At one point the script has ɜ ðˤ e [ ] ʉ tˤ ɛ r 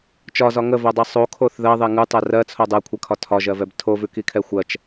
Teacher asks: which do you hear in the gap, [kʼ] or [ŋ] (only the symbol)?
ŋ